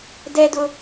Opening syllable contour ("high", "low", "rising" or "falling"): high